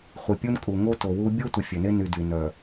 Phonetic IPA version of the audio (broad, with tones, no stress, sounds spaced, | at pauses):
χʷ i˨ pʲ u˦ n kʼ u˨ ŋ o˦ t o˨ w u˦ bʲ o˦ tʷ ə˨ fʲ ø˨ n e˦ n y˨ d y˨ n œ˨